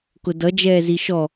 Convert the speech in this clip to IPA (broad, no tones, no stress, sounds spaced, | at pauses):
k ʊ d ʌ d͡ʒ ɛː z i ʃ ɔ